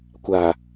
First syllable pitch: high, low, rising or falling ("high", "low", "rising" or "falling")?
low